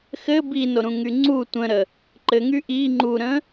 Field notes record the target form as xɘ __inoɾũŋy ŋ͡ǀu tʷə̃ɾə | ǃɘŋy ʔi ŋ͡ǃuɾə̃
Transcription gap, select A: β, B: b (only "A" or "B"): B